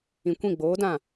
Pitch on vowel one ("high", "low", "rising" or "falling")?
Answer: low